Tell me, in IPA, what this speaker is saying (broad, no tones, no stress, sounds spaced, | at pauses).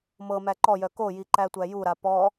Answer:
m ɤ m æ ǃ ɔ j œ k o j i ǃ æ tʷ æ j u ɾ a p ɔ